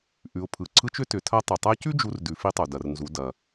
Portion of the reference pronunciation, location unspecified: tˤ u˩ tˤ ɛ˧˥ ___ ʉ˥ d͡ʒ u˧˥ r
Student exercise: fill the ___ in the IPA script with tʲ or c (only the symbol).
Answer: c